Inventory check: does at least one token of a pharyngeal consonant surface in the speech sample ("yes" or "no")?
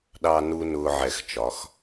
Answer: yes